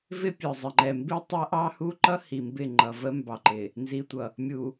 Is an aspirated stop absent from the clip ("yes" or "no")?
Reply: yes